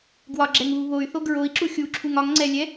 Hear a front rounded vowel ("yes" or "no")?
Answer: yes